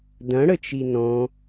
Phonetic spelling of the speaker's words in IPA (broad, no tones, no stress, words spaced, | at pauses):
dɐ̃ɽət͡ʃi nɔ̃